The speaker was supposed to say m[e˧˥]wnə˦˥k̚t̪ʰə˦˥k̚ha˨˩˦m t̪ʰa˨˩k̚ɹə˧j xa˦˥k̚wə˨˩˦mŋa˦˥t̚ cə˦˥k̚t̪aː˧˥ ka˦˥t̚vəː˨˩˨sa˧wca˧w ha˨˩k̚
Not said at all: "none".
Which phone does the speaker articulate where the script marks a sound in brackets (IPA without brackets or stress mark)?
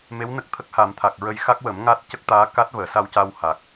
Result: e˧˥